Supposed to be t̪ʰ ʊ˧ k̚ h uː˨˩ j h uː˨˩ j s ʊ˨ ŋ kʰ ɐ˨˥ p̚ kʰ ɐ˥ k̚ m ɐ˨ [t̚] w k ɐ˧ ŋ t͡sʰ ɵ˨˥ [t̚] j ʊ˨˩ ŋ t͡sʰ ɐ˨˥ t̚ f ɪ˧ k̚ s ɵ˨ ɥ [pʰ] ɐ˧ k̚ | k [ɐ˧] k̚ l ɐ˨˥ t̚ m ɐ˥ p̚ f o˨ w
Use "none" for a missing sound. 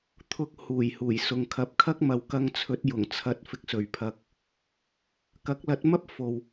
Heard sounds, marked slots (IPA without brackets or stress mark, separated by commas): none, t̚, pʰ, ɐ˨˥